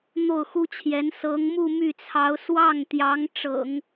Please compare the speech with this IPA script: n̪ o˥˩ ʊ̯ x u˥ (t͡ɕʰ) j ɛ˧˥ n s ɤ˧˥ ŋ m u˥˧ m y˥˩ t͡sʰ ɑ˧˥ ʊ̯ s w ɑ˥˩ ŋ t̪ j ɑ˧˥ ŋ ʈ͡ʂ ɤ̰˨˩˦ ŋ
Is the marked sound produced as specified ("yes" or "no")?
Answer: yes